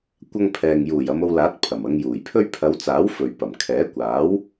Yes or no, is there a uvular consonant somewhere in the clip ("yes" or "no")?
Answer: no